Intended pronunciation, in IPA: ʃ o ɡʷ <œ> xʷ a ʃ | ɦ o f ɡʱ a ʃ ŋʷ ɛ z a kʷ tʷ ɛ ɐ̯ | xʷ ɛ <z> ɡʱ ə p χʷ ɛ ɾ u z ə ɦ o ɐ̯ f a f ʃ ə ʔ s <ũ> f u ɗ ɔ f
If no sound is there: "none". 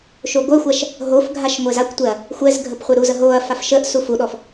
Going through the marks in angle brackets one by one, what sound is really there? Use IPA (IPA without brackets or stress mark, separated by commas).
œ, z, u